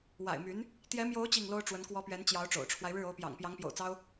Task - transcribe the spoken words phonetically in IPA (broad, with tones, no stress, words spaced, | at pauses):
wa̰˨˩ɪ̯my˧˥n | t̪jɛ˧˥mjo˧˥ʊ̯ t͡ɕi˥˩ŋlo˥ʊ̯ ʈ͡ʂwə˧˥nkwɔ˧˥pɥɛ˧˥n t͡ɕjɑ˧˥ʊ̯ʈ͡ʂo̰˨˩ʊ̯ʈ͡ʂʰwa˦ɪ̯ ɻɻ̩˥˩o˧˥ʊ̯pjɑ̰˨˩ŋ pjɑ˧˥ŋpjo̰˨˩ʊ̯t͡sɑ˥ʊ̯